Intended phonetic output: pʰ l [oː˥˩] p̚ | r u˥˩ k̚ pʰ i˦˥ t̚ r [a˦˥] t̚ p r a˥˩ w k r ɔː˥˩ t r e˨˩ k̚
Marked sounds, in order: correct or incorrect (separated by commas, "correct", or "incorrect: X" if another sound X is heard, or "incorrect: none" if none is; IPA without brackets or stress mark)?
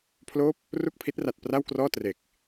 correct, incorrect: a˨˩